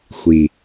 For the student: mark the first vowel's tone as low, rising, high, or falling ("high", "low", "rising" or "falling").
low